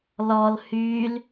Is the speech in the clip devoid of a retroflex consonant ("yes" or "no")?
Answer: yes